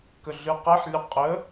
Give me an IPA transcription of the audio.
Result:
k ə ɮ ɨ q ɛ ħ lʲ ə qʼ ə

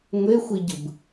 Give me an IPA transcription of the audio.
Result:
ŋʷ e xʷ i ɟ ɯ b

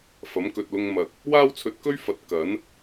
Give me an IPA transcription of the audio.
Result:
f ɐ˨˥ m k ɵ˨ t̚ l ʊ˧ ŋ m ɐ˨ k̚ | w aː˥ w t͡sʰ ɵ˧ t̚ k ɵ˥ ɥ f ɐ˨˥ t̚ k ɐ˨˥ n

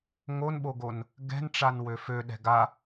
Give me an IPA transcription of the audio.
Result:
ŋ o n ɓ o ɡ o n | ɡ ɛ̤ n ʈ͡ʂ a n w ø f ø ɗ ɛ̤ ɡ a

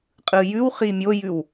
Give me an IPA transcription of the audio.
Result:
qʼ ɯ j ʉ w χ i mʲ o j ʉ w

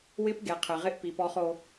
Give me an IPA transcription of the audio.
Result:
w ɪ˦ p ɡ e˨ qʰ ɪ˨ ʁ ɪ˦ ʔ p i˨ p ɔ˦ χ o˦

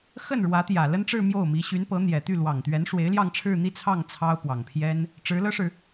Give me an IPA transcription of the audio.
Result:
x ə˥˩ n ɻ w ä˧˥ t̪ j ä˨˩ l ə˥ n ʈ͡ʂ ɻ̩˥˧ m j o˥˩ ʊ̯ m i˧˥ ɕ y˧˥ n p ɤ˧˥ n̪ j ɛ˨˩ t̪ y˥˩ l w ɑ˨˩ ŋ t̪ ɥ ɛ˧˥ n ʂ w e˧˥ ɪ̯ l j ɑ˥˧ ŋ ʈ͡ʂʰ ɻ̩˥˧ n̪ i˥˧ t͡sʰ ɑ˥˩ ŋ t͡sʰ ɑ˥ ʊ̯ p w ɑ˨˩ ŋ pʰ j ɛ˥ n | ʈ͡ʂ ɻ̩˧˥ l ɤ˥ ʂ ɻ̩˨

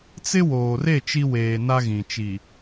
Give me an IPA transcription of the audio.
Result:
t͡s ɪ˦ w oː˨ r e˦˨ t͡ʃ i˦ w eː˨ n a˦ ɣ ĩ˨ t͡ʃ i˨

